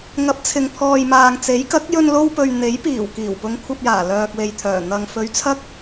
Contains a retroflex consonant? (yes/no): no